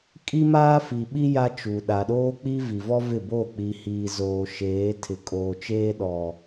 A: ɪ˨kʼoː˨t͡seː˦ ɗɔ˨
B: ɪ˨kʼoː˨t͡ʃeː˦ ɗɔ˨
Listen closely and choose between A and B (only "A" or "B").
B